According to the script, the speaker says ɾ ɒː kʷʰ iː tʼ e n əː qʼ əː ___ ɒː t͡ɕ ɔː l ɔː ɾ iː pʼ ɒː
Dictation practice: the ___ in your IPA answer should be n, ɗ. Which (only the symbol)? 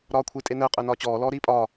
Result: n